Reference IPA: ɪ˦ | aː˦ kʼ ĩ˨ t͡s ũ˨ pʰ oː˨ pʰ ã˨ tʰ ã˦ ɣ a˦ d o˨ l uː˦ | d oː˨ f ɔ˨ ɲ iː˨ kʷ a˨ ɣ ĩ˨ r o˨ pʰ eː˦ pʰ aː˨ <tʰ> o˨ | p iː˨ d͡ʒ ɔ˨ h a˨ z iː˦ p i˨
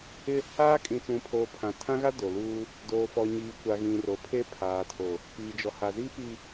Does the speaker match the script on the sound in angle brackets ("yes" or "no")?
yes